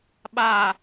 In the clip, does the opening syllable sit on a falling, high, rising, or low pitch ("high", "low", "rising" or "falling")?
low